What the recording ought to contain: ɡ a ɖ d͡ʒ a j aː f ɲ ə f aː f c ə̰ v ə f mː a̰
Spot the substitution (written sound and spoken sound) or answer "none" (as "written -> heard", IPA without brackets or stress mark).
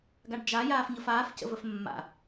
none